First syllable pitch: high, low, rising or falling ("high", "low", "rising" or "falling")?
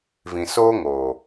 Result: low